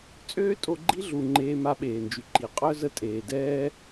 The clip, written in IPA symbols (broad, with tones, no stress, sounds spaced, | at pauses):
t͡sʼ øː˥ tʼ o˧ ɡ͡ǃ i˥ ɮ u˩ ŋ͡ǃ eː˧ m a˧ ɓ eː˩ n d͡ʒ y˩ ǃ i˩ qʼ œ˥ z ə˧ tʼ eː˩ d ɛː˥